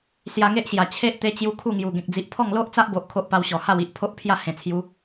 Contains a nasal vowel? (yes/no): yes